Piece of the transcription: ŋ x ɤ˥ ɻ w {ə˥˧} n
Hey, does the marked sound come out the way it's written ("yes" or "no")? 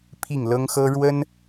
no